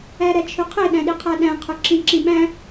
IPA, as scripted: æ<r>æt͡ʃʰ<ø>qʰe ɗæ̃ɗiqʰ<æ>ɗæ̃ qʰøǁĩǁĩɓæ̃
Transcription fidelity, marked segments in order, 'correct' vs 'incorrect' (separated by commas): incorrect, correct, correct